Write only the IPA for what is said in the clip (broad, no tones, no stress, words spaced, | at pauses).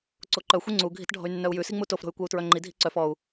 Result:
ǀoǃœ xʷiŋ͡ǀu ɡʱi̤tɖʱɔ̤y̯nːœu̯jʉ siŋ͡mutof ɾo̤y̯kʷɛu̯tɹœŋ͡ǃi dʱi̤ǀœf ɔu̯